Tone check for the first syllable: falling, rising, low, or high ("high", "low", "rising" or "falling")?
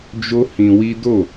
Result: high